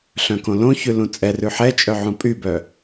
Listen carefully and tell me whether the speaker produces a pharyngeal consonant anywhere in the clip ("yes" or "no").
yes